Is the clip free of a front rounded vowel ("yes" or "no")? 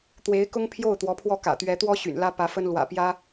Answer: no